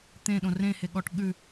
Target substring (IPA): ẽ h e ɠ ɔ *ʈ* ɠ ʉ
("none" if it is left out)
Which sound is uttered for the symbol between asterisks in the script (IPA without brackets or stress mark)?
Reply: ʈ